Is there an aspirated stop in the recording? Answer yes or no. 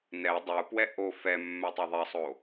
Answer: no